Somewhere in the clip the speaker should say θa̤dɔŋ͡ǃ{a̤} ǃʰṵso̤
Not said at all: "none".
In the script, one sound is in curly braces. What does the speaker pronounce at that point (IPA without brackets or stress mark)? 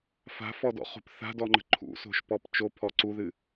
ə̤